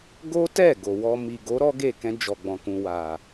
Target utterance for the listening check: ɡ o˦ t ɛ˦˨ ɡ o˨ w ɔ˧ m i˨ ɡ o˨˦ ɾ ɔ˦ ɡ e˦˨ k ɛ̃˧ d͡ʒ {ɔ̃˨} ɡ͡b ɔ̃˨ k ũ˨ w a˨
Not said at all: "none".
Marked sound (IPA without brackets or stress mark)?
ɔ˨